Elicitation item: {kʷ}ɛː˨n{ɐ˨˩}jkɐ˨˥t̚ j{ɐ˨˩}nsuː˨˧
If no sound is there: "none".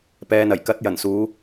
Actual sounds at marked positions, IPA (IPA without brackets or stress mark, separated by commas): p, ɐ˨˩, ɐ˨˩